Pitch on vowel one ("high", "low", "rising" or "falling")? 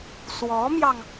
rising